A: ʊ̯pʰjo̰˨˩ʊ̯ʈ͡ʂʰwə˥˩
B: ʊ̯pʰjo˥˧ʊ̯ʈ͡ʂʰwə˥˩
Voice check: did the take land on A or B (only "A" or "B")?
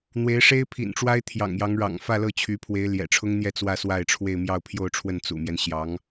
B